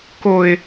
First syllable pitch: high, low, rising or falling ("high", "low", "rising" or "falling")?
low